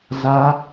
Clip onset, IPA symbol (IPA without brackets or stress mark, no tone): z